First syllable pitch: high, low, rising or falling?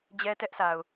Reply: high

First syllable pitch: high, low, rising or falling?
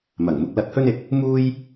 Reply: low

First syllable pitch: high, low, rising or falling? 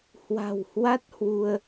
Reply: low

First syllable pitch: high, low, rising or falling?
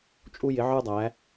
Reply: high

